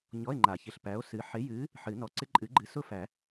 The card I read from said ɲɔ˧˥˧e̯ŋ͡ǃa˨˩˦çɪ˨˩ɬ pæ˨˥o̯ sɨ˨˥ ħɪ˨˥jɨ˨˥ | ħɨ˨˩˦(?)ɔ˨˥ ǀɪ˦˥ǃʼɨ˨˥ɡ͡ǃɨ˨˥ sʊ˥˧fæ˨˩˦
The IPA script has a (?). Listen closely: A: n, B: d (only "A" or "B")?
A